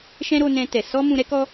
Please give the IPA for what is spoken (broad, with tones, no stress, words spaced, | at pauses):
ʃɛ̃˦ɾo˧nɛ̃˧tɛ˨ sɔ˧ mũ˧ɾɛ˦ kɔ˦